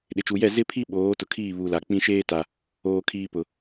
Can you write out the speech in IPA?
ɗ ɪ˨ t͡ʃ u˨ j ɛ˦˨ z ɪ˦ pʰ i˦ ɓ oː˨˦ t ʊ˨ kʰ iː˦˨ β u˨ l a˨ k͡p ĩ˦ ʃ eː˦ t a˨ | oː˦ kʰ iː˦ p ʊ˨

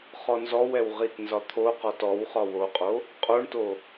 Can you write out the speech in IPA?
χ ɔ n z ɔ w ɛ w ʁ i t n z ɒ t̪ʰ o q ɔ t ɔ w χ ɒ w o qʼ o | qʼ o ɳ t o

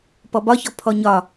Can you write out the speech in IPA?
p ɔ b ɒ ç ɔ pʰ ɔ ɲ ɒ

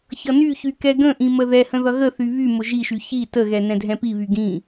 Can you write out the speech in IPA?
ç ʌ n y ç y k ɛ ɡ ə̃ ʔ ĩ m ə ð ɛ h ə̃ ð ʌ ɣ ə θ y β y m ʊ ʒ i ʃ y ç i t ə ɣ ɛ n ɛ̃ dʱ ɛ̃ p i β y ɡ ĩ

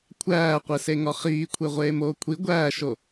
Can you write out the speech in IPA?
kʷʰ æː qʷ e s e ŋ ɒ χ iː kʷʰ e ʁʷ eː m oː kʷʰ i ɡʷ æː ʃ o

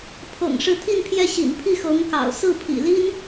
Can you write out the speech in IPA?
pʰ ɤ̰˨˩ ŋ ʂ ɻ̩˧˥ t̪ʰ i˥˧ n pʰ j ɛ˥˩ ɕ ḭ˨˩ n pʰ i˥˩ x ɤ˧˥ ŋ k ɑ̰˨˩ ʊ̯ s ɹ̩˥˩ pʰ ḭ˨˩ l i˥ n

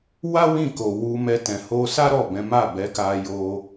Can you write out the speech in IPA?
w a˦ w ĩ˦˨ k o˨ w u˧ m ɛ˧ t ɛ̃˨ h o˧ s a˦ ɾ ɔ˦˨ b ɛ̃˨˦ m a˦˨ b ɛ˨˦ k a˧ j o˧

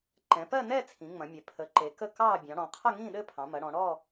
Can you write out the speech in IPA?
ǃ ɛ̃˩˧ p ɜ˥˧ n ɛ˥˧ t͡sʰ ĩ˩˧ ŋ͡m ɐ̃˩˧ mʲ ɛ˩˧ pʰ ə˩˧ ǃ e˩˧ k ə˥˧ k ɑ˥˧ bʲ ɑ̃˩˧ ɽ ɔ̃˩˧ qʰ ɐ˥˧ ŋ ĩ˥˧ ɗ ɘ˥˧ pʰ ɑ̃˩˧ m ɐ˩˧ ɽ ɔ̃˩˧ ɽ ɔ˥˧

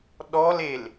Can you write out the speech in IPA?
ɗ ɔ l e l

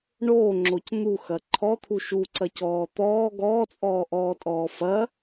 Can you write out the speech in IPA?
ɳ oː ŋ͡ǁ o c n̪ u x ɐ ǃʰ ɔ t̪ʰ u ʃ u ǀ ɐ c ɔː t̪ ɔː ɡ ɔː t͡sʼ ɔː ʔ ɔː tʼ ɔː f ɐ

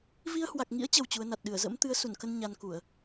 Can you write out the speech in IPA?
v i˧ ə̯ h w a˨˩ k̚ ŋ ḭ˧˥ ə̯ t͡ɕ ə˨˩ w t͡ɕ u˨˦ ə̯ n a˨˩ t̚ ɗ ɨ˧˩ ə̯ z ə̰˧˥ m t̪ ɨ˨˦ ə̯ s u˧˩ n k ə˧ n ɲ a˧ n k u˧˩˨ ə̯

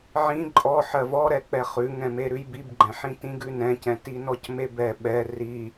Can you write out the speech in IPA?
ʕ ĩ ǃʼ ɔ ħ ɜ v ɔ ɾ ɛ k͡p ɛ χ ʉ ŋ ɛ̃ m e ɾ ʉ j b i b ɡ͡ǃ ɛ̃ ħ ĩ t ĩ ɡ ʉ n ɛ̃ c ɛ̃ t i n ɔ c m e b ɛ ɓ ɛ r i

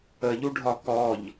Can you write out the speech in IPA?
ə ʎ u ɖʱ ɒ k ɔ ʎ

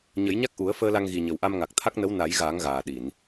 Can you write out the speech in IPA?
ɲ ə˨˩˦ j ɲ a˦˥ k̚ ʔ u˨˩˦ ə̯ f əː˧ l a˧ ŋ ɣ i˨˩ ɲ ə˨˩ w ʔ a˧ m ŋ a˨˩ k̚ t̪ʰ a˦˥ k̚ n ə˧˥ w n a˨˩˦ j ɣ aː˨˩˦ ŋ ɣ aː˨˩ ɗ i˨˩˨ n

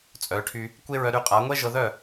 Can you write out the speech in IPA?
t͡sʼ œ˨˦ ʈʰ y˧ | kʷ e˦ ɹ œ˧ ɾ y˧ qʼ a˨˦ ŋʷ ɛ˦ ʒ ɤ˧ ð œ˦˨

